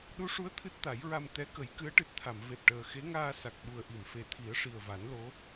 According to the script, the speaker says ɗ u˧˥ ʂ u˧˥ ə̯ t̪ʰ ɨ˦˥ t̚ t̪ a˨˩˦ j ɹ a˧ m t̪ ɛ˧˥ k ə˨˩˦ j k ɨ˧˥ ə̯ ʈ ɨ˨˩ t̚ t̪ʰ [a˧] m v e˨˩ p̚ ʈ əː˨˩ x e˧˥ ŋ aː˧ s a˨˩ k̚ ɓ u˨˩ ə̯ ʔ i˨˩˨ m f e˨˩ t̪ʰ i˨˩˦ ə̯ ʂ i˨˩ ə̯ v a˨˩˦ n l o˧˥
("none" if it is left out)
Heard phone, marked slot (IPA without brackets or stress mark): a˨˩˨